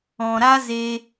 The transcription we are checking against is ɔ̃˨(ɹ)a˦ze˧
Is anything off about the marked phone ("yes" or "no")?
yes